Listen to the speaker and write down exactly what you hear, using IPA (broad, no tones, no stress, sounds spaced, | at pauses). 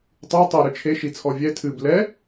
tˤ ɨ e̯ tˤ i ɾ ɨ t͡ʃʰ e ʃ i t͡sʰ ɔ vʲ ɛ tʰ ɨ b l ɛ